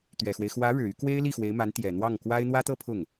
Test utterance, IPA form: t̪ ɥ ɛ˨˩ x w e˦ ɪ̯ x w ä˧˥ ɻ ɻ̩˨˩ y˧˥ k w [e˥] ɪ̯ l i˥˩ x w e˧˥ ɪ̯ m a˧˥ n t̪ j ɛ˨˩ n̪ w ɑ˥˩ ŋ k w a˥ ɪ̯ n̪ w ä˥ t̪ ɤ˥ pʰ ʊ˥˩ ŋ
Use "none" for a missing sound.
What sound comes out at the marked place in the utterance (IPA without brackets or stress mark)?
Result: e˥